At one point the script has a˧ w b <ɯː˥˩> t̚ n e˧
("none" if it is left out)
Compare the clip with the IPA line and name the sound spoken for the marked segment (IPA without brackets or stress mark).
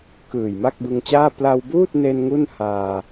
uː˥˩